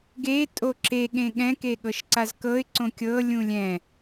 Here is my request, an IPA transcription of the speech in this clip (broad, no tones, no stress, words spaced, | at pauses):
ɡe tʼoǁe ɠẽɠɛ̃ keɠɤʃǀazkɤɪ̯ ǀõkʲɤ lʲũlʲɛ̃